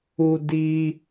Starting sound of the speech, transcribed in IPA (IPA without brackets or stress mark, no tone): u